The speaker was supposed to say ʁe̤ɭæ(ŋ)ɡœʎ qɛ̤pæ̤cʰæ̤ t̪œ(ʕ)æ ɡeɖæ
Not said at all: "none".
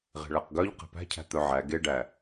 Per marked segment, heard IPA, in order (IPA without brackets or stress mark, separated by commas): q, ʕ